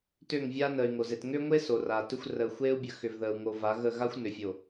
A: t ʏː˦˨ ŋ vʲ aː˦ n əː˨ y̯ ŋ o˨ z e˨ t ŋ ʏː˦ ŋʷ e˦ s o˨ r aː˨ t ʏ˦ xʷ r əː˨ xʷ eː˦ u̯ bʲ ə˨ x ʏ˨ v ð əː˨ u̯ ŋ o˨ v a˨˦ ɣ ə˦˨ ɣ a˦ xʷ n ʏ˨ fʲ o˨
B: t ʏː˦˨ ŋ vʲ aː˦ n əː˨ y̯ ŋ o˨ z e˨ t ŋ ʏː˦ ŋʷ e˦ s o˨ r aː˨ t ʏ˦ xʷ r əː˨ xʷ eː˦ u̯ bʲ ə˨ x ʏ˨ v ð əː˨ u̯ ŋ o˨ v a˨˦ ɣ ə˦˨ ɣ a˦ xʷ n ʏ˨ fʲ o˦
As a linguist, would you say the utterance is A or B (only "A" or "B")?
A